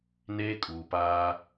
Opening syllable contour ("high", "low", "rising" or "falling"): high